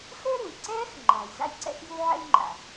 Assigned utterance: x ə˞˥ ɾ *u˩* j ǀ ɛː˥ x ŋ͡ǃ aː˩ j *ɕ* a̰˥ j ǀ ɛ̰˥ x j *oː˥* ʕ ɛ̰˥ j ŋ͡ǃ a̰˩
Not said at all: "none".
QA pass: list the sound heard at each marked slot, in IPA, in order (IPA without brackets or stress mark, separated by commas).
u˩, z, uː˥